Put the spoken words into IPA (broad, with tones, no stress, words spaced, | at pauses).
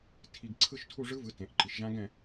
tʰi˧ɡ ǀʰɯ˥˧ʃtʰu˥˧ ʐɯ˦˥vɯ˩˧˩ tẽ˩˧ʔǃi˩˧ʃ ʒã˦˥ɡɛ̃˥˧